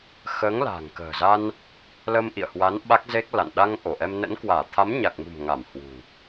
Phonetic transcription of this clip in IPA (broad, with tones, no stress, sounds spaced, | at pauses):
x əː˨˦ ŋ l a̤ː˨˩ ŋ k ə̤ː˨˩ z a˧ n | l ə˧ m ʔ ḭ˧˨ ə̯ h w a˨˦ n ɓ a˦˥ k̚ z e˦˥ k̚ l a̰˧˨ n ɗ a˧ ŋ ʔ o˧˩ ʔ ɛ˧ m n ə̰˧˥ n k w aː˧˩ t̪ʰ a˨˦ m ɲ a˨˩ k̚ m ṳ˨˩ m ŋ a˧˩ m h w ṳ˨˩